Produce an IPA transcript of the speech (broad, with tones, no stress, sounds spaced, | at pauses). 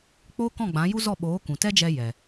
k͡p oː˦ k ɔ̃˦˨ ɡ͡b ã˨˦ j u˦ z ɔ˦˨ ɓ oː˨˦ k ũ˨ t ɛ˦ d͡ʒ ɛ˧ j ɛ˨